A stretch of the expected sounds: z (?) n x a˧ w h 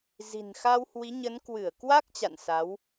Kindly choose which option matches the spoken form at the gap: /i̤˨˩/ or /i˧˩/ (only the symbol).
i̤˨˩